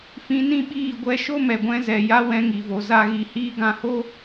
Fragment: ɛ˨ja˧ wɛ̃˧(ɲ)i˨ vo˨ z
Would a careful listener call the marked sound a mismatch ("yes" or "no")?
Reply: yes